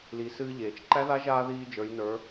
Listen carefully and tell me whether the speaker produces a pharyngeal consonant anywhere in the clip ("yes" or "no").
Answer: no